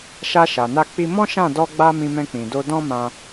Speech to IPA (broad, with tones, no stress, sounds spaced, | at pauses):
ʃ a˧ ʃ a˨ n a˧ k͡p i˧ m ɔ̃˦ ʃ ã˦˨ d ɔ˧ ɡ͡b a˧ m ĩ˧ m ɛ̃˧ k͡p ĩ˨ d o˧ d ɔ̃˦ m ã˧